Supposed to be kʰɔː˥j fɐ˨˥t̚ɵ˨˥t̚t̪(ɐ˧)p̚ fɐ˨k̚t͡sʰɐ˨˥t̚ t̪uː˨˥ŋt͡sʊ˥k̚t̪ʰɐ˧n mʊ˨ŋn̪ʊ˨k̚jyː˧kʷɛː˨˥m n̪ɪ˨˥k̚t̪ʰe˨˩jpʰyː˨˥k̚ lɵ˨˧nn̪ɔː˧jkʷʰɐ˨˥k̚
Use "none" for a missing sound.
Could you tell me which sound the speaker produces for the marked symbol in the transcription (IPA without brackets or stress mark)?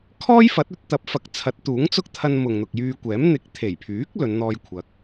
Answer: ɐ˨˥